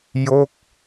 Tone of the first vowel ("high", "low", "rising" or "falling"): falling